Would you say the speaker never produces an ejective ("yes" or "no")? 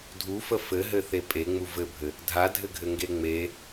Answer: no